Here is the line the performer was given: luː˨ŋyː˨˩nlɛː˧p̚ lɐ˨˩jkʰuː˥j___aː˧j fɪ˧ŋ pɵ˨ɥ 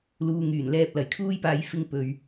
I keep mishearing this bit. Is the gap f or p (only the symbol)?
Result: p